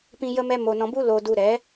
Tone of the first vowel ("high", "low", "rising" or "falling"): high